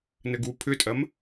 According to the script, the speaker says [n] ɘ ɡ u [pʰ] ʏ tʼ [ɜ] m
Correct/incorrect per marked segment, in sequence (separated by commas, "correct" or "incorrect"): correct, correct, correct